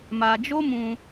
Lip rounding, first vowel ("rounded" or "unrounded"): unrounded